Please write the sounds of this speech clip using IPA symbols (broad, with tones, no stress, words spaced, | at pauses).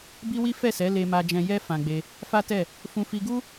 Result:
bi˦wi˦ fɛ˦˨sɛ˨˦ le˦ma˦d͡ʒɛ̃˦ jɛ˦ fã˧ɡ͡be˧ | fa˦tɛ˦˨ | fũ˧fi˧ɡu˦